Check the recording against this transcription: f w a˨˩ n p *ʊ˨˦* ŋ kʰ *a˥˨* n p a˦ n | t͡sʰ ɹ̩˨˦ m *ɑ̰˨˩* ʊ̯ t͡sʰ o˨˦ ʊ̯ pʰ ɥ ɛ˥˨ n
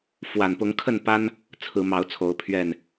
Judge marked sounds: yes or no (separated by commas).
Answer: yes, no, no